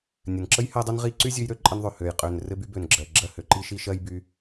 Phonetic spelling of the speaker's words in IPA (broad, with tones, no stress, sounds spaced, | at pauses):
nʲ ɘ˩ n ǁ ə˥ j h ɜ˦ dˤ u˦ n ʁ i˦ ǀ y˥ zʲ ø˦ j ɾ ø˦ ǃʼ ə˦ n ðˤ ø˨ h ø˨ j qʼ ø˨ n r ɘ˥ b y˥ b ø˨ n ɡ͡ǁ ɜ˨ ɡ͡ǁ ɜ˦ h ø˩ ǃ i˥ ʃ i˦ ʃ ɜ˥ j b y˦